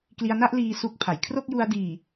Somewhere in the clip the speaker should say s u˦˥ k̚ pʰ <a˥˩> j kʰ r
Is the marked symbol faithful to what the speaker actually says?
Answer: no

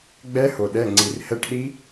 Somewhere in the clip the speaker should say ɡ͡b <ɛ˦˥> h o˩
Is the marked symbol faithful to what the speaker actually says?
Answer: yes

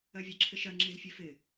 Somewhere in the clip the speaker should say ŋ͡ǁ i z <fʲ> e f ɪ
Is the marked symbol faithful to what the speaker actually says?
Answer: yes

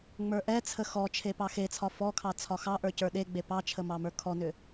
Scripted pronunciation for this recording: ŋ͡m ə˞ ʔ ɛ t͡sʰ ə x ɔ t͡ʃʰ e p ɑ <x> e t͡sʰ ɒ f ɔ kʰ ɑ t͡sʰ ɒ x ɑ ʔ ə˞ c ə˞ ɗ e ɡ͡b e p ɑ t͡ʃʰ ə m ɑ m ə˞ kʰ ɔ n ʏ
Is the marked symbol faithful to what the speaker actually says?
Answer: yes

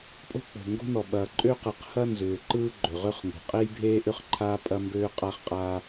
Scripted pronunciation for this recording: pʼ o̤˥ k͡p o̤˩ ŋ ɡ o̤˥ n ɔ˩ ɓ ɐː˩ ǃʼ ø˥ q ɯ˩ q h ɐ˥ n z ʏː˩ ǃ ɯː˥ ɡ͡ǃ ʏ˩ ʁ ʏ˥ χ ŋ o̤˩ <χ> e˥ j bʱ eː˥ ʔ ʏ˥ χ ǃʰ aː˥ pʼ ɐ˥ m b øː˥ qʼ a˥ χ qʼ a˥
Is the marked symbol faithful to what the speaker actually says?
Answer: no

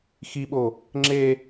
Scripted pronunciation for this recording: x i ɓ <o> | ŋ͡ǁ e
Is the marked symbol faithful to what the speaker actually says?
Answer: yes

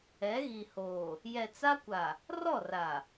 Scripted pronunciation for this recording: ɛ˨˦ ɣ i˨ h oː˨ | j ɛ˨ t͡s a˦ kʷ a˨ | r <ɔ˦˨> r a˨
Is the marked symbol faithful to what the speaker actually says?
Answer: yes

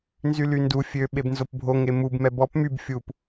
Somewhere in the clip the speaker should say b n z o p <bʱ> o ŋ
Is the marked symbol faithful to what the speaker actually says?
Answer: yes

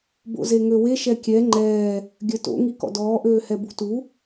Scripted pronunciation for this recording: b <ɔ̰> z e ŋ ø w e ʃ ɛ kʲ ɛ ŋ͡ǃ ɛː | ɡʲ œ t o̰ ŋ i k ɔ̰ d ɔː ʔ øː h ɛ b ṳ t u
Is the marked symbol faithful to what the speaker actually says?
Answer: no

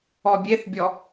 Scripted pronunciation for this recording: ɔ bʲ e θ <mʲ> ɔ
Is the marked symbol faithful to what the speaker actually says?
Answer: no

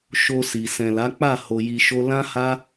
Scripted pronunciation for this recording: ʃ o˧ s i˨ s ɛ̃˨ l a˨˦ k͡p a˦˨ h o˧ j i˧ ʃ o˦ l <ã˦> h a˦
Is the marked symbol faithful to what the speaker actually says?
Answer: yes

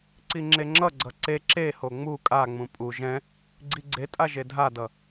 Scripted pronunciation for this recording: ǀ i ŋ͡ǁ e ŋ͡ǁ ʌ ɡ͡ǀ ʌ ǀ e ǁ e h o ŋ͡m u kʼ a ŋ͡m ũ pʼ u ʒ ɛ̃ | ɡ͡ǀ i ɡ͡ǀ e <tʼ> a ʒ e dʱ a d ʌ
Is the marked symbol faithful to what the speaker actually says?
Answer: yes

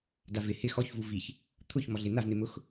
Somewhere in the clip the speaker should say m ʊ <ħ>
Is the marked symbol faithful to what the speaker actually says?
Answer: no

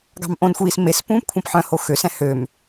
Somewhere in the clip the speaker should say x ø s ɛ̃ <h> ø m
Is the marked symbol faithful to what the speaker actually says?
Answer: yes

